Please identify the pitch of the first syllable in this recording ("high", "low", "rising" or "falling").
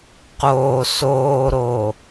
low